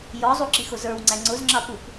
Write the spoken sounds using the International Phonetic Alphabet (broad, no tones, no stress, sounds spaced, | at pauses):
j ɔ zˤ u ǁ i x ʊ z ə˞ w ŋ͡ǀ æ ŋ͡ǀ ʊ z ŋ͡ǁ ɑ p u p